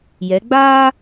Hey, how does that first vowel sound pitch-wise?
rising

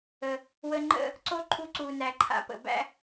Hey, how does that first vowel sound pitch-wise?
low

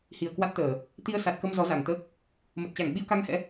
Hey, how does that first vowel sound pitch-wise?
low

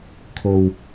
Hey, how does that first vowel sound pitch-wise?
low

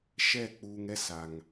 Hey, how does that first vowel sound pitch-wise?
falling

